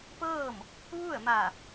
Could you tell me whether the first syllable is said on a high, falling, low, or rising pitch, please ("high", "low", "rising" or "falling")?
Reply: falling